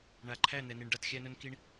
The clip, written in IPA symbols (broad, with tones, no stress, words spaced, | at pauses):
ɳa˨ǃʰæ˦˨n̪ɛ˨ni˨ɳ ɖa˦txʲæ˦nɵ˦nki˦ɳ